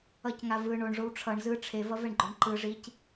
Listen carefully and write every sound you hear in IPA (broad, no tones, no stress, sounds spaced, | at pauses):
ʌ c ŋ a v ɯ ɳ o ɳ ʐ o w ʈ͡ʂʰ ʌ ɳ z ɯ ʈ͡ʂʰ e v ʌ v ɛ ɳ ɡ͡ǃ o ɳ ǃ ɯ ʐ i c